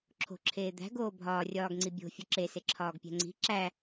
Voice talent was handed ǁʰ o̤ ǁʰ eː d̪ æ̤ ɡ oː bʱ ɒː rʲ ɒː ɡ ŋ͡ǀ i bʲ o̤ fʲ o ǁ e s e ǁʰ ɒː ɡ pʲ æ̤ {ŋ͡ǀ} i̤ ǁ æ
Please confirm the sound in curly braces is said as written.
yes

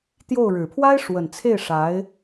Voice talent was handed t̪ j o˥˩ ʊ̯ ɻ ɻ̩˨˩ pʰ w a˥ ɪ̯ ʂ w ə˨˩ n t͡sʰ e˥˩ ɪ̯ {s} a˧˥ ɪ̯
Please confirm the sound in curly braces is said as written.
no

